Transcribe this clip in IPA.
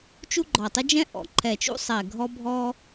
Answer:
t͡ʃ u˦ ɡ͡ǃ ɔ˨˩ tˤ ɘ˦ d͡ʒ ɛ̃˦ ʔ ɔ̰˨˩ ǃʰ ɛ˨˩ t͡ʃ ṵ˦ sˤ ɛ˨˩ ɡʱ ɔ˦ bʱ ɔ˦

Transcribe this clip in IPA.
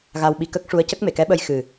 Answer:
ɣ a˧ w ɓ i˧ k ə˦˥ k̚ ʂ u˧˥ ə̯ c ə˦˥ k̚ m e˨˩˨ k ɛ˧˥ ɓ ə˧ j x ɨ˨˩

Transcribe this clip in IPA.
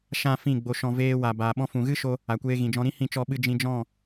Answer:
ʃ ã˦ f ĩ˦˨ ɡ͡b o˧ ʃ ɔ̃˧ v eː˧ w a˨ b aː˨ ɓ ɔ̃˧ f ũ˨ ɣ ɨ˦ ʃ o˦ | a˨ kʷ eː˧ ɣ ĩ˨ d͡ʒ ɔ̃˧ ɾ ĩ˦ h ĩ˦˨ t͡ʃ ɔ˧ ɓ ɨ˧ d͡ʒ ĩ˧ d͡ʒ ɔ̃˦˨

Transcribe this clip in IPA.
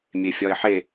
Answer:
mʲ e fʲ ɒ ɪ̯ ħ e

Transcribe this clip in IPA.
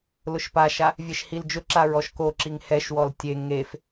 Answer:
l ʊ ʃ p a ʃ a | vʲ e ʃ h i l d͡ʒ ʊ ǁ a ɹ ɔ ʃ k o ǁ i ŋ h ɛ ʃ w ɔ l tʲ e ŋ e f

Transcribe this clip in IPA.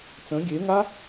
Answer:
t͡s ə̃ ɡʲ e ŋ a

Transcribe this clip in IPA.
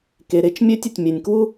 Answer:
k e˩ ɾ e˥ t͡ʃ mʲ ø˥ tʲ ɪ˩ tʲ mʲ e˩ nʲ k w u˥

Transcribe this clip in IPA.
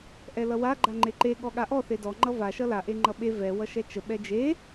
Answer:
ʔ ɛ l ʌ w a ɡ͡ǃ a ŋ͡ǃ e ǃ e ɠ ɔ ɠ a ʔ ɔ θ e d ɔ ŋ͡ǃ ʌ v a ʃ ʌ l a ʔ e ŋ͡ǃ ʌ ɓ e v ɛ w ʌ ʃ ɛ t͡ʃ ə ɓ ɛ d͡ʒ e

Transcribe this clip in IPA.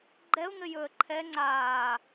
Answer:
ɡ͡ǃ ɛ ʊ̯ ŋ ɘ j ɵ ə̯ ǃʰ ɛ ŋ͡ǀ aː

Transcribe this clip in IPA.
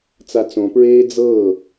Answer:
t͡s a t͡s õ p ɹ eː d͡z ɤː

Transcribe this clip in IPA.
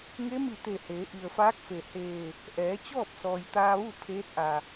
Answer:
ŋ e˧˥ m i˧˩ t̪ e˧˩ h eː˩˧ ʔ i˩ ə̯ f aː˧˥ k̚ f e˩ h eː˧˩ | ʔ ɛː˩˧ t͡ɕ ɔː˥˨ p̚ s ɔː˩ j t̪ aː˧ ʋ u˥˨ pʰ eː˧˥ t̚ ʔ a˩

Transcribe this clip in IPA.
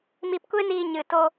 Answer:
m i˧ p kʷ e˦ n iː˧ ɲ ɨ˨ t o˧

